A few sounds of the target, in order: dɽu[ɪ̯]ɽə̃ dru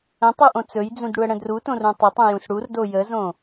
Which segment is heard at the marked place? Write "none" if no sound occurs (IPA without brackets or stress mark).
ə̯